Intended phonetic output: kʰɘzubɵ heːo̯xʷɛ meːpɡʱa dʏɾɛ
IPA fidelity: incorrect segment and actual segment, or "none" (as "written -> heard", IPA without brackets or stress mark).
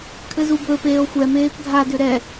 h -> p